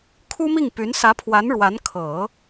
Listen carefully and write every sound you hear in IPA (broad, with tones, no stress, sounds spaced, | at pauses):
kʰ u˥ m i˥˩ ŋ p y˧˥ n s ä˧˥ pʰ w a˧˥ n ɻ w a˧˥ n kʰ ɤ˨˩˦